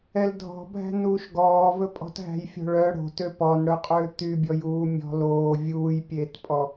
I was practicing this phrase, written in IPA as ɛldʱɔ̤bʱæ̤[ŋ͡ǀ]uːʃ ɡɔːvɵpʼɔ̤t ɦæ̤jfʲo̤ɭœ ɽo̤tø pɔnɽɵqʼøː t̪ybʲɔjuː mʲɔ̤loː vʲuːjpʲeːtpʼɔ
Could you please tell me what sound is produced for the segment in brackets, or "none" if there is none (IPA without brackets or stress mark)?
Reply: n